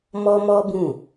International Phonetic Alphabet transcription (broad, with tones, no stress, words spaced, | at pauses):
mɔ˦mɔ˦bũ˦˨